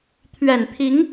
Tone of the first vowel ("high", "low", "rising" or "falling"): low